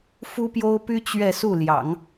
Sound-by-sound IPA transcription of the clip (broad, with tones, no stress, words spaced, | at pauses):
fu˥pjo˥ʊ̯py˥ t͡ɕɥɛ˥˧su˥˩ljɑ̰˨˩˦ŋ